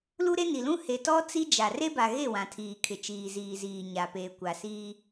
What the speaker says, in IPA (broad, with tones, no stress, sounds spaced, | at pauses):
l u˦ ɾ e˦ n i˨ l ũ˦ h e˨ t ɔ˦ t͡s i˦ d͡ʒ a˨ r e˦ b a˨ ɣ e˦˨ w ã˨ tʰ iː˨ kʰ ɪ˨ t͡ʃ iː˨ z iː˨ z iː˨ ɲ a˨ p eː˨ kʷ a˨ s iː˦